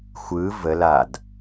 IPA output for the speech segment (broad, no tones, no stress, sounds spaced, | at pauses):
xʷ ɯ v ə l a d